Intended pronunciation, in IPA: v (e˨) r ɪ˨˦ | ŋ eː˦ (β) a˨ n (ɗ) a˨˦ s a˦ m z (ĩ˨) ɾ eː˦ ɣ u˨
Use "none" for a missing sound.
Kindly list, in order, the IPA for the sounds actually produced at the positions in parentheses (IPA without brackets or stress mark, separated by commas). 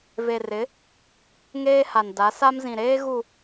e˨, h, d, ĩ˨